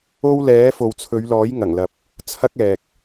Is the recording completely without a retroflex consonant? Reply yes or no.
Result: yes